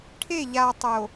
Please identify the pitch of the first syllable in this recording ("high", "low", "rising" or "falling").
falling